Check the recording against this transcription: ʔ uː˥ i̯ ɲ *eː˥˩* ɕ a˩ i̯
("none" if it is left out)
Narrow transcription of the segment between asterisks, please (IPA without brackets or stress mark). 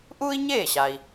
eː˥˩